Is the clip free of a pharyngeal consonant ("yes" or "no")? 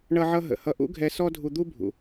no